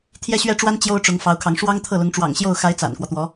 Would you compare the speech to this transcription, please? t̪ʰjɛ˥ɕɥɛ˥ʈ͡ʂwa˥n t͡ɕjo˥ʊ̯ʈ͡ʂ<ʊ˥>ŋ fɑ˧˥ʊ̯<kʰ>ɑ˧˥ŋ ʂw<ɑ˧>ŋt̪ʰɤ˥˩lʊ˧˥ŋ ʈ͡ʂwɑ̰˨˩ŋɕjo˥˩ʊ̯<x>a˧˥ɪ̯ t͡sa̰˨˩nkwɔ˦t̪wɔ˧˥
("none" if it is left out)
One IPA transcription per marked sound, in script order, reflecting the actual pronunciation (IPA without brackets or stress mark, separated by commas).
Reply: ʊ˧˥, kʰ, ɑ˥, x